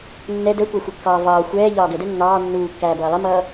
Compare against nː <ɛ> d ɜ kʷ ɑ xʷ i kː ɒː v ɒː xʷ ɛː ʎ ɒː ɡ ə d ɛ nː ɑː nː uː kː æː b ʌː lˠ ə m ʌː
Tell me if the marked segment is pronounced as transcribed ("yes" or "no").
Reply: yes